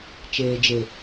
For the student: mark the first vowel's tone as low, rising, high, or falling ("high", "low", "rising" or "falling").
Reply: low